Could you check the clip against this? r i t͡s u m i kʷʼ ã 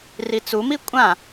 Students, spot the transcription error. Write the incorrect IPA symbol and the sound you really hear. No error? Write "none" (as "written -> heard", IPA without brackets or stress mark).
none